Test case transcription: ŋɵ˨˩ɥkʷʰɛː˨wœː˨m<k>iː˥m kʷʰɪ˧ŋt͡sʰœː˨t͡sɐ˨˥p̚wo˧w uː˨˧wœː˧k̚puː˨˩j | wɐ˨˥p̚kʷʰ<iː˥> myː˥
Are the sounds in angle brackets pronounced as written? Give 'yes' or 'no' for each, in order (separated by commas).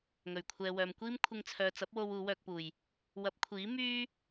no, no